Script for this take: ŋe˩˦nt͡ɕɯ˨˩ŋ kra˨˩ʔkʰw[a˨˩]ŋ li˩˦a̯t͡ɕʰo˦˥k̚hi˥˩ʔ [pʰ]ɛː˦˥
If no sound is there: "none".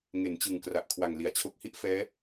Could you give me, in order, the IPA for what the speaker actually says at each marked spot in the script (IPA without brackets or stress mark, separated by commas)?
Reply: a˨˩, f